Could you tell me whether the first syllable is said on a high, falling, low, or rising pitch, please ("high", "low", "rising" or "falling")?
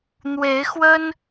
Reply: rising